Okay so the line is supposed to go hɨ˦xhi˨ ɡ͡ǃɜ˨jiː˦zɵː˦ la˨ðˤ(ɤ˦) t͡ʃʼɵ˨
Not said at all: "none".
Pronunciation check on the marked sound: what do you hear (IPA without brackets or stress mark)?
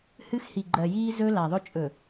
ɵ˦